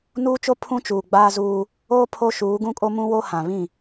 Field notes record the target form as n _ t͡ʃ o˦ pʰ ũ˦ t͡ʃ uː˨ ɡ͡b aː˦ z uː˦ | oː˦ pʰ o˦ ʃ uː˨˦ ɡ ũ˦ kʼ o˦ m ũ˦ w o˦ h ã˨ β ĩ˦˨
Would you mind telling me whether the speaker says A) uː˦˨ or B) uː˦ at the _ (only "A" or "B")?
B